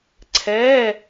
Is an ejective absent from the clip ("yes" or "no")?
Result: yes